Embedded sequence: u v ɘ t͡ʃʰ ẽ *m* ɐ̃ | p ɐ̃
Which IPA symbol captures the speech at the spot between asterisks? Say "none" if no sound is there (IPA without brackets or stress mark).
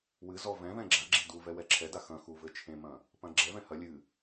m